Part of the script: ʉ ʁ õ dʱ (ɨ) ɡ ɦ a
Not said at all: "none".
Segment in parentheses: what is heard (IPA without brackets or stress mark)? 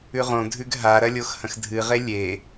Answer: ʉ